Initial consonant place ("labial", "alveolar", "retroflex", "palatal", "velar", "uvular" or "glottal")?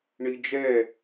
retroflex